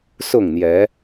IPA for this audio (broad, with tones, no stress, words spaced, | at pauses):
sʊ˥˨ŋn̪jɛ˨˦